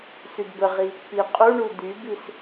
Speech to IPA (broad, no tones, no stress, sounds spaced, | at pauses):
s y d b ə ʁ i | p i qʼ u ɳ u d̪ y b i s